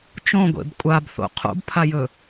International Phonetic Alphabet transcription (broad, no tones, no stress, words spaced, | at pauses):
t͡ʃõɡʷḛb kʷʼabθo̰ qʰo̰bpʰajɵ